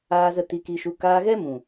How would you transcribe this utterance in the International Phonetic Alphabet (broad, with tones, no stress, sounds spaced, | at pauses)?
aː˧ z ə˧ t i˧ k i˧ ʃ u˧ k aː˧ ɣ ɛ˦ m ũ˨